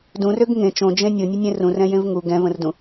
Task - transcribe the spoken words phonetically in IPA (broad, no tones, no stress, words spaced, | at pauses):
dũrøɡ ŋẽ t͡ʃõd͡ʒẽ nʲonʲənʲẽ rũrɛ̃jẽv ŋu ɡɛ̃və̃rdũ